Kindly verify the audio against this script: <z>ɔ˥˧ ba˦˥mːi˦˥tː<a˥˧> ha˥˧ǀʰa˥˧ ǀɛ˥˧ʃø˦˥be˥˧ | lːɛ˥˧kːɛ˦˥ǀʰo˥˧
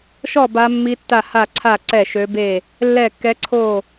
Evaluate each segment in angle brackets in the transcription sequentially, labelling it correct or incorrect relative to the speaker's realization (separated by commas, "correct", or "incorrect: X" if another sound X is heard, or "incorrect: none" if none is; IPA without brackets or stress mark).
incorrect: ʃ, correct